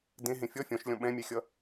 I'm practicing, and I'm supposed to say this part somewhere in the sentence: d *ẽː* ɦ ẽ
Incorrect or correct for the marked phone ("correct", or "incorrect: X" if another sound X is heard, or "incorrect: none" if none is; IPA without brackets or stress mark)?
incorrect: ẽ